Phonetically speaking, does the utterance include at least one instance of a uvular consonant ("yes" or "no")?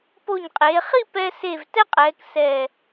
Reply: yes